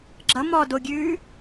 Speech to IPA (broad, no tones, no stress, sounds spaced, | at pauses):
ɡ͡ǁ ʌ m ɔ d o ɡʲ ʉː